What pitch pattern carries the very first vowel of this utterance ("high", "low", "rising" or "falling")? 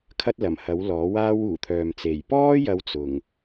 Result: high